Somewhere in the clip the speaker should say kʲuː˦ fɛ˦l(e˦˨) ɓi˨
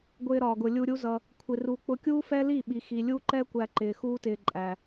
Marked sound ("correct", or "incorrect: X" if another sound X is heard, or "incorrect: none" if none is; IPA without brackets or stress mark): incorrect: i˦˨